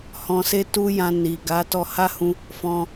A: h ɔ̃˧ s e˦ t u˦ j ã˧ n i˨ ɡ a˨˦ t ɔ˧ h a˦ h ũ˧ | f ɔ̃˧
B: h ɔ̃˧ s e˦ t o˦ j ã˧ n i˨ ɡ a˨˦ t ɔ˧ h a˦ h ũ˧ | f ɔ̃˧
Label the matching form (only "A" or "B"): A